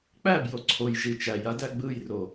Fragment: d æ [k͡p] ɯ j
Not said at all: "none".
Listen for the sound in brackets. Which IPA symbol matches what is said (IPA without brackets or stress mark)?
ɡ͡b